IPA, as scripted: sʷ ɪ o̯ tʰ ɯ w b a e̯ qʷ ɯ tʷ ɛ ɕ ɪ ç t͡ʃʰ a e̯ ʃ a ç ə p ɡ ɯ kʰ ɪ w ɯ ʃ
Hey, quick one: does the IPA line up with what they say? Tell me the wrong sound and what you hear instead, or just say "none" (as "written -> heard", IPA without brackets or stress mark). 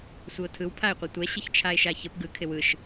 b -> pʰ